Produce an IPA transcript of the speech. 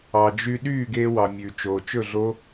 ɑ˨ d͡ʒ y˧ ɗ yː˦˨ ɡ eː˧ w ɑ˨ mʲ ʉ˨ t͡ʃ oː˨ t͡ʃ ɵ˦˨ ɮ o˦

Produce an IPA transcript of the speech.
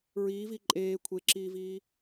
ɹ iː v i ǃʼ eː kʷʰ e ǁ iː v iː

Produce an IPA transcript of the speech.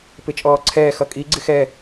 p ɪ t͡ʃʼ ɔː ǀʰ ɛː x ʌ kʼ i ɡ͡ǀ ɪ x ɛ

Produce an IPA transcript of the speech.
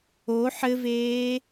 o ħ ɘ v eː

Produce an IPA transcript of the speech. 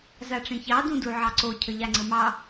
z a ʈ͡ʂ ẽ ç ɑ d ũ d u ʕ ɑ ǀ o cʰ ə ʎ a ŋ͡ǀ ə m ɑ

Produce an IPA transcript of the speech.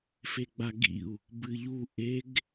f e ɡ͡b a ɡ ḭ u̯ | b ɨ ʎ u ʔ e ɡ

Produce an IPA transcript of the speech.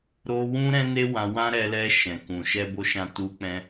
ɾ o˧ w ũ˦ ɾ ɛ̃˦ n e˦ w ã˧ w ã˦ ɾ ɛ˧ l ɛ˧ ʃ ɛ̃˨ k ũ˨ ʃ ɛ˧ b o˧ ʃ ã˧ t u˧ k͡p ɛ̃˧

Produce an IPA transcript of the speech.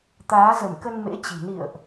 t̪ aː˨˦ z ə˧˩ m k ə˧ n m ḛ˧˥ t͡ɕ i̤˨˩ n ḭ˧˨ ə̯ ʔ

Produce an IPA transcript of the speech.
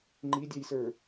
ŋ͡ǃ i dʲ ɑ j s ə˞

